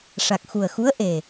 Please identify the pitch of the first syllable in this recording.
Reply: low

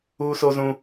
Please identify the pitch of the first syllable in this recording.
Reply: high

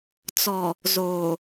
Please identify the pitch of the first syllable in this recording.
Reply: low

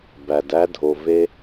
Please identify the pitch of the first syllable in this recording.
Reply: low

